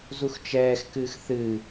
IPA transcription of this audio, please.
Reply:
z u x t͡ʃ ɛː x k ɨː x θ ɨ

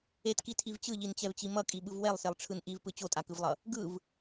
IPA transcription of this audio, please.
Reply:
e t k i tʰ i v t͡ɕ ɯ ʎ i n t͡ɕ ɛ v t͡ɕ i m ʌ kʼ i ɓ ɯ v w ɛ lˠ s e lˠ ʈ͡ʂʰ ɯ n ʔ i v p ɯ t͡ɕ o tʼ a k ɯ v lˠ ʌ | ɡ ɯ v

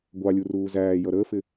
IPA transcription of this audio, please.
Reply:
ɡʷ ɑ lʲ u r uː z æː j ʌ ɾ əː f ɪ

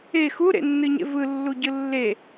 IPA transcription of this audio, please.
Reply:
e x u ɾ ḛ nː ɨ ɲ ḛ v ɯ lː u ɟ ɯ lː e

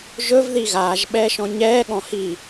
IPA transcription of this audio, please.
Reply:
ʒ ɵ v ð i ɣ aː ʒ ɓ ɛː ʃ ɔ̃ ɲ ɛː ɠ ɔ̃ h i

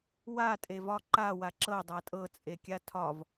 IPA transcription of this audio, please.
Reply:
w a tʼ e v ɒ ǃ a w a ǁ ɤ dˤ a tʼ ɤ t͡sʼ e kʲ a tʰ ɒ v

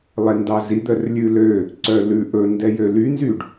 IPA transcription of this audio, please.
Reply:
lˠ ɛ n d ɑ z i d̪ œ r lʲ ʉ l ø | ǀ œ l ʉ ʔ ɵ n d ɛ j ø l y n z y ɖ

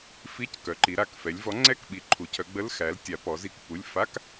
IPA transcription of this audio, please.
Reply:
f i˧˥˧ c k œ˩˧ ǃ i˩˧ ɾ a˩˧˩ k f ɛ˩˧ lʲ v ɔ˨˥ ŋ͡ǀ ɛ˧˥˧ k ɓ i˩˧ ǃʰ u˩˧ cʰ œ˩˧ ɡ͡b ə˧˥˧ l x æ˨˥ l tʲ a˩˧ p ɔ˩˧ z i˨˥ k p u˩˧˩ lʲ f a˧˥˧ k

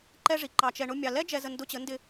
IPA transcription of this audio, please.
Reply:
ǃ ɛ˦ ʐ i˨ ǃ ɑ˨ t͡ʃ ɛ˨ ɳ ʊ˧ mʲ ɑ˨ l ɛ˦ d͡ʒ ɛ˧ z ə˧ n d ʊ˧ t͡ɕ ə˨˦ n d ɪ˧

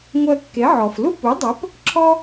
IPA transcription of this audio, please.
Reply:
ŋʷ ɜ˧ kː e˩˥ ʕ ɔ˩ f l u˥ p u˩˥ dˤ ə˩˥ p | ǁʰ ɔ˥

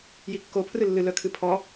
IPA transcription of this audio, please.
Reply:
j i kː o pʰ r ɨ lː ɨ l œ kʰ ɨ pʰ ɔ

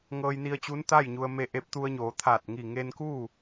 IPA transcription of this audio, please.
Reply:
ŋ ɤː˧ j n i˧ ə̯ t͡ɕ u˧˥ n t̪ a˥˨ j ɲ u˧ ə̯ m e˥˨ ʔ e˧˥ p̚ t̪ u˧ ə̯ ɲ oː˩˧ t̪ʰ aː˧˩ t̚ ŋ i˧˩ ŋ e˧ n k uː˥˨

